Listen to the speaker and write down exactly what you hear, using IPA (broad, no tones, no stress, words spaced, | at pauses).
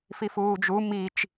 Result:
fifuːd͡ʒu mit͡ʃ